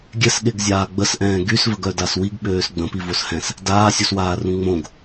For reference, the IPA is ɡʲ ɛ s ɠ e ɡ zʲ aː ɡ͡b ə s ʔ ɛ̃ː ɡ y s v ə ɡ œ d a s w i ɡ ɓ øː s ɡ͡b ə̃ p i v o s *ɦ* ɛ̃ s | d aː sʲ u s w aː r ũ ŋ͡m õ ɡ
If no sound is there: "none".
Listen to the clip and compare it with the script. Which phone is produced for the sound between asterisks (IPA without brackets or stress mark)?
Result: h